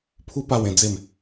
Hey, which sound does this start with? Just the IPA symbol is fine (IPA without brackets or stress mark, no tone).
pʰ